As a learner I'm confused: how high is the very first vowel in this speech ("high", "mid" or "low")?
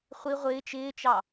high